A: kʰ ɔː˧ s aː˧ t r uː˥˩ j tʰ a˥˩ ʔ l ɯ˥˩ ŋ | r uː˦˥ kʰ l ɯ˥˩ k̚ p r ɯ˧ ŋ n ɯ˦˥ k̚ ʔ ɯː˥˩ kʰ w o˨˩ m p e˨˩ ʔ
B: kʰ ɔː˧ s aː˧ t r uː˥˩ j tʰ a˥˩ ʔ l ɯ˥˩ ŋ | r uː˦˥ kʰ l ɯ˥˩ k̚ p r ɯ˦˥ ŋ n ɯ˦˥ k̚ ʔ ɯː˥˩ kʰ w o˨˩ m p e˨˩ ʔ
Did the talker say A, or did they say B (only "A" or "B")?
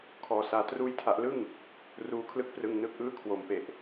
A